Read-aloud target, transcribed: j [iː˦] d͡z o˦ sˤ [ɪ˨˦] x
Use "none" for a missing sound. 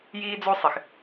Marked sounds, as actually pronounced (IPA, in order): iː˦, ɪ˨

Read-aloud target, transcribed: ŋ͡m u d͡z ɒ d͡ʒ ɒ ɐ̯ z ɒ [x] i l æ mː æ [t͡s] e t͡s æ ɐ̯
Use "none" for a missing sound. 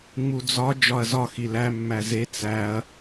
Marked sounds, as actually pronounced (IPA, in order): x, z

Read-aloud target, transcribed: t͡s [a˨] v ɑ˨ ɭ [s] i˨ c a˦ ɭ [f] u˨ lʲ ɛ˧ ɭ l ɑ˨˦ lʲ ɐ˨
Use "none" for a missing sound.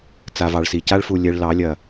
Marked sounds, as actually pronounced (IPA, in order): a˨, s, f

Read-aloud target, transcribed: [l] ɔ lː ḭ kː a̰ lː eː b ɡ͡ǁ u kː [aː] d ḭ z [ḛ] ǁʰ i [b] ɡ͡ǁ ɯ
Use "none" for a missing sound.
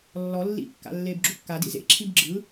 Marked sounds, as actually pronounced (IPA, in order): lː, a, ḛ, b

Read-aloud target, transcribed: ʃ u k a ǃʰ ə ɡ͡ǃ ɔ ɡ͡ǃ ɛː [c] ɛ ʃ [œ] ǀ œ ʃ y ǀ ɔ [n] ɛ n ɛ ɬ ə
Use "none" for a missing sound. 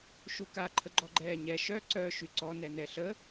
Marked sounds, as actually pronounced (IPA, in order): ɲ, œ, n

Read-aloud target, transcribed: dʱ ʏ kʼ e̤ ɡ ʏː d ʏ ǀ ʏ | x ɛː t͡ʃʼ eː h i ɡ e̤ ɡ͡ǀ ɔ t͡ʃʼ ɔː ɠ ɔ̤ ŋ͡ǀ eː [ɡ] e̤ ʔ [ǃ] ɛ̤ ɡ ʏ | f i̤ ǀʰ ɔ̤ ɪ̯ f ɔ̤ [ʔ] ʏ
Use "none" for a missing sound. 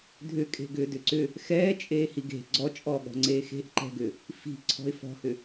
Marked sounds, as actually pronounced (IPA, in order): x, ǃ, h

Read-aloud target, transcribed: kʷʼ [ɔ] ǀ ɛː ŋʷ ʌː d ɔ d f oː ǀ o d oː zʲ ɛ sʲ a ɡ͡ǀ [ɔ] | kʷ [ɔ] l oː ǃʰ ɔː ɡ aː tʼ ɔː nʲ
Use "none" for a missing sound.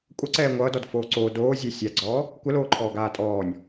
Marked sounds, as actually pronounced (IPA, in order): ʌ, ɔː, ə

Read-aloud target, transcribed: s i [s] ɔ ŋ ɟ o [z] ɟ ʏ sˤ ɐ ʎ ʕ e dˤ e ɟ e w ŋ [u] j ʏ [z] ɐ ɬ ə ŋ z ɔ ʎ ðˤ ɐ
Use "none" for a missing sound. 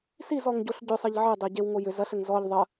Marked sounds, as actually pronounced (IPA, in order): z, ɬ, o, z

